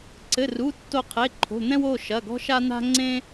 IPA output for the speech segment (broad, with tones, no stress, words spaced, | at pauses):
ǀɘ˩˧˩ru˩˧˩ tːo˧˩qʰe˩˧˩ǃʰo̤˩˧˩n̪ɛ̃˦w o˩˧˩ʃɐ˩˧˩ɡɔ̤˦ʃa˦ n̪a̤˦ŋ͡ǀẽ˦